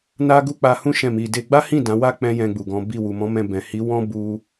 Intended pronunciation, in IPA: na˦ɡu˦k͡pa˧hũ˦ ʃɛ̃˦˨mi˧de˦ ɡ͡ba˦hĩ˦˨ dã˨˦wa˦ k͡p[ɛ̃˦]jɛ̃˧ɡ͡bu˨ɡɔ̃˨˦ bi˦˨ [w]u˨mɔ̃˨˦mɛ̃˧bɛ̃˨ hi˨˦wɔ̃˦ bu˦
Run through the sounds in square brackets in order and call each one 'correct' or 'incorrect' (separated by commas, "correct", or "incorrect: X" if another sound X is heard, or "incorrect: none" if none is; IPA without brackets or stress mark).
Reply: correct, correct